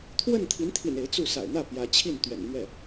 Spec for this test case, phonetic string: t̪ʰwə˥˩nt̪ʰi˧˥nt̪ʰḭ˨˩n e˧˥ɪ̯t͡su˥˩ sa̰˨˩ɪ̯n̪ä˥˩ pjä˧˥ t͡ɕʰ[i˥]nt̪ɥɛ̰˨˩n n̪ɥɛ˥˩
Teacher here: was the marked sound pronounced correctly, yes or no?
no